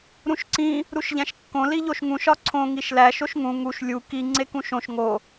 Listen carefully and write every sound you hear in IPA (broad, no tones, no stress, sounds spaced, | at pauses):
ɾ ũ ʃ ǀ ĩ | ɾ u ʃ ʎ æ̃ ʃ kː õ l i ʎ o ʃ ŋ ũ ʃ ɒ ǀʰ õ ŋ i ʃ l æ ʃ o ʃ ŋ ũ ŋ u ʃ lʲ u k i ŋ͡ǀ e k ũ ʃ õ ʃ ŋ o